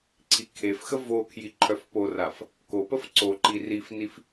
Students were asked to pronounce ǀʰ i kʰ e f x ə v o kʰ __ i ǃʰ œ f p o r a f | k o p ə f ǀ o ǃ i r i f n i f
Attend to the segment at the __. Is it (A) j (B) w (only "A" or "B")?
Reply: A